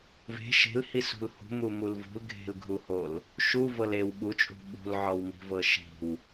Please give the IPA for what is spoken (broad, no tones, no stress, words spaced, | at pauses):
ve̤ ʃe̤lhisṳl hṳmumul vṳlɡʱe̤lɡʱuhol | ʃuvɤl ew ɓut͡ʃʼṳ ɓṳlʕɔwmi̤vɤ ʃi̤w